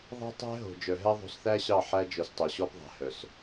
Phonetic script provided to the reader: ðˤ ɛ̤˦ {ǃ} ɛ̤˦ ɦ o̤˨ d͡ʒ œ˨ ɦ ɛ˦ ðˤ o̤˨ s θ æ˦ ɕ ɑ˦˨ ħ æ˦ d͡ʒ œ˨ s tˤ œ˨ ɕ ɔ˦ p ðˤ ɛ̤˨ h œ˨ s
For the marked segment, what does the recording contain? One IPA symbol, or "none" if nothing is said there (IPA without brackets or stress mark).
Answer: tˤ